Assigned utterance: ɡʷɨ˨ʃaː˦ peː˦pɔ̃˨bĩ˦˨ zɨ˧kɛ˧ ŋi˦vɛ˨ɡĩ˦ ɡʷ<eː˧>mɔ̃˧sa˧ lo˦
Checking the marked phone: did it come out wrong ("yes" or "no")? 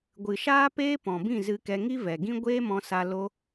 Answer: yes